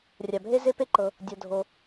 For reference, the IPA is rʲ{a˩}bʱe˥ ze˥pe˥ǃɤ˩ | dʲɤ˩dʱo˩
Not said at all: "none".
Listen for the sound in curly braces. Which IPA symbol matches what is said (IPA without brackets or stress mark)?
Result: a˩